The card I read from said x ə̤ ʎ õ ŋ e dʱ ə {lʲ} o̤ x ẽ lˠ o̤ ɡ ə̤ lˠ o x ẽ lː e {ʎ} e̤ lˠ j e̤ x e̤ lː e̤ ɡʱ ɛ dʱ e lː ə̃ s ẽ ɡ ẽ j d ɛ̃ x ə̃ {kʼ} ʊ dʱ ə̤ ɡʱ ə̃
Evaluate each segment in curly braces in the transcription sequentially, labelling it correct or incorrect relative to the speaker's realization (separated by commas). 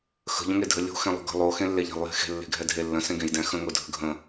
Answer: correct, correct, incorrect